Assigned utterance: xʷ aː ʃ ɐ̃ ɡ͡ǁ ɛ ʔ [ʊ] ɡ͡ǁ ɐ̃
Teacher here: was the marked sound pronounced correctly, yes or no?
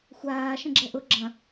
yes